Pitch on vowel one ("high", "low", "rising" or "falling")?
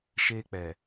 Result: high